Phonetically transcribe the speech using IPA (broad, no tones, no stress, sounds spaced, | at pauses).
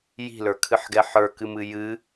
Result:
j i̤ l ə˞ kʰ ɨ ħ ɡ ɛ ħ ə˞ k ɨ m ɨ j ɨ